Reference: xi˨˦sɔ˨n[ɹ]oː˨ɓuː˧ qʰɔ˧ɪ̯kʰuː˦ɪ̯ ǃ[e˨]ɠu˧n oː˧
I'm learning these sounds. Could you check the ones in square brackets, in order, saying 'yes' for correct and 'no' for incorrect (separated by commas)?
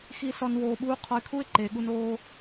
no, no